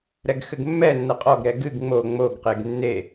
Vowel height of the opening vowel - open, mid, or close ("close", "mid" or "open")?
mid